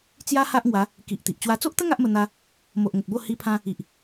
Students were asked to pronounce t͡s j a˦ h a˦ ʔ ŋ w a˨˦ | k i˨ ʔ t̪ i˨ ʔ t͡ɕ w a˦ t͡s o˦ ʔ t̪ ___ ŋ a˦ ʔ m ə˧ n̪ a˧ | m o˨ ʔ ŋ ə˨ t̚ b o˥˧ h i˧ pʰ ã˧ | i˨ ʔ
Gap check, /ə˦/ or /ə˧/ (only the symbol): ə˦